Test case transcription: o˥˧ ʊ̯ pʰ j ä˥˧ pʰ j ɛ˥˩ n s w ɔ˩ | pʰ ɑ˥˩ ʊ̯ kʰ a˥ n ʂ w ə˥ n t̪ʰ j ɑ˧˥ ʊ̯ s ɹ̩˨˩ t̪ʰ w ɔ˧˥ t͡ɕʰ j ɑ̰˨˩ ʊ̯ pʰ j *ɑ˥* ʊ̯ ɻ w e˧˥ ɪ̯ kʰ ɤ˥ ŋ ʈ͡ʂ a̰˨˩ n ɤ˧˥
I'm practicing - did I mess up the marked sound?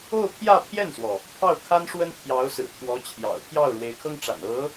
yes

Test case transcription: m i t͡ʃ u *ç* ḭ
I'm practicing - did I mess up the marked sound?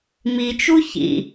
no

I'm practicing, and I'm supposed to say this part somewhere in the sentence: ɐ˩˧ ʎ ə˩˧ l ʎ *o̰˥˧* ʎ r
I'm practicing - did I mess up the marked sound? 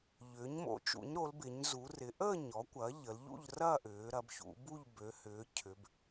yes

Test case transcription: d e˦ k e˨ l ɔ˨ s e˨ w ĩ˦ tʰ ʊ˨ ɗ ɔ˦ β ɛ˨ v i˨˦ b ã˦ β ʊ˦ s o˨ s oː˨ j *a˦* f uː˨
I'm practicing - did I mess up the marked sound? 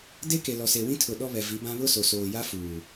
no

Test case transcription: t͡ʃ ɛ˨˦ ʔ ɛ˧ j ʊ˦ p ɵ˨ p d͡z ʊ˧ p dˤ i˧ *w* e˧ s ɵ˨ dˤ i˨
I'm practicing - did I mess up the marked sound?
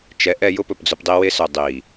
no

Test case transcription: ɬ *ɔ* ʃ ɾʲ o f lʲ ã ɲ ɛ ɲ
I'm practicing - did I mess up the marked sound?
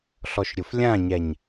no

